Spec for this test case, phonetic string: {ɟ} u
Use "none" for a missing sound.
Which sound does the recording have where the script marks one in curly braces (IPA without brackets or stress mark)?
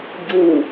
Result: ɟ